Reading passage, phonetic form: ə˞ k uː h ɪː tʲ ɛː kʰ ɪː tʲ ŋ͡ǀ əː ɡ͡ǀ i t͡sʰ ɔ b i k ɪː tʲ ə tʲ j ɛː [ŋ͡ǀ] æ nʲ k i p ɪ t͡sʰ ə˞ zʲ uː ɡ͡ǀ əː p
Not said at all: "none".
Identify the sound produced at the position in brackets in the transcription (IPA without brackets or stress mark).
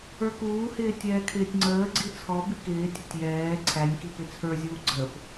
ǀʰ